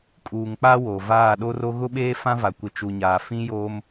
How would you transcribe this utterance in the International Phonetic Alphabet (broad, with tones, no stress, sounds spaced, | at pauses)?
kʼ uː˨ ŋ k͡p a˦ w oː˨ v aː˦˨ ɗ o˦ r o˦ ɣ ʊ˦ ɓ eː˦ f ã˦ v a˨ kʷ ɪ˨ t͡ʃ u˨ ɲ aː˨ f ĩ˦ j oː˦ m